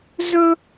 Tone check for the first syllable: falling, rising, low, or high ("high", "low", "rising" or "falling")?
high